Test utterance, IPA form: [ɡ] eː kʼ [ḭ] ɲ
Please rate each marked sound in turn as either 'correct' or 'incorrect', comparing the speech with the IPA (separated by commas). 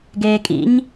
correct, correct